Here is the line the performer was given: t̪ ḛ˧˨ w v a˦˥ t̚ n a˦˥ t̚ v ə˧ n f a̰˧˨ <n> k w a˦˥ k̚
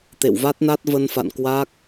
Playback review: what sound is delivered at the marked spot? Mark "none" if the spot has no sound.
n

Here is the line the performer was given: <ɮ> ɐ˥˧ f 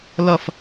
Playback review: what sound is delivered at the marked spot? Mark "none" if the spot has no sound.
l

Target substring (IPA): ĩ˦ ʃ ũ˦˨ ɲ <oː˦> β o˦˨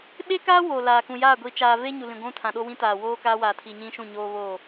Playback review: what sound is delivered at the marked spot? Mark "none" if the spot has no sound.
oː˦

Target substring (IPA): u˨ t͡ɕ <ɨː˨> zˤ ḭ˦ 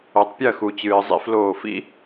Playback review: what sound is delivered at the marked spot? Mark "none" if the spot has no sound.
ɨː˨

